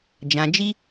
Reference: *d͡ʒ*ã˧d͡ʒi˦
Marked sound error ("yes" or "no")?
no